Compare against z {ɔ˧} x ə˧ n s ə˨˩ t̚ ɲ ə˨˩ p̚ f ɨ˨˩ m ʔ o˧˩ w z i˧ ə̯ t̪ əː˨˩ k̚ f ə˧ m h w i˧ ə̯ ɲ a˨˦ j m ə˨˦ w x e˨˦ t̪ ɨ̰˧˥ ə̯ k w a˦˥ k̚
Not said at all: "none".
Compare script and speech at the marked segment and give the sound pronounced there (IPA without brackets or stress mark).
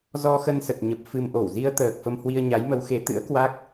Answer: ɔ˧